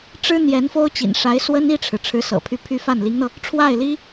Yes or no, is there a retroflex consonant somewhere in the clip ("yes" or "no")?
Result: yes